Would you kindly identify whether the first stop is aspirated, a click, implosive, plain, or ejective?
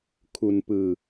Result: aspirated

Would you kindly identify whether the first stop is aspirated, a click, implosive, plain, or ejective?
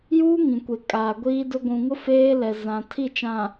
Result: plain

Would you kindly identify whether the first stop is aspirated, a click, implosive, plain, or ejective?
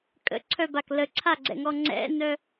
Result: ejective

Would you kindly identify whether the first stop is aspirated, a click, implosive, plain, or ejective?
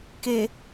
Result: plain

